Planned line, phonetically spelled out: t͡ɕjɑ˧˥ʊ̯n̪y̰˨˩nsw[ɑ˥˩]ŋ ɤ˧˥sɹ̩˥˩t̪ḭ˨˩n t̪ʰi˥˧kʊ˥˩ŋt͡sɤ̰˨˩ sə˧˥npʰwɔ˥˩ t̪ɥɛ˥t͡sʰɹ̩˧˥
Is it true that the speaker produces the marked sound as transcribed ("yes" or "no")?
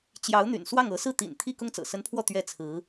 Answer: yes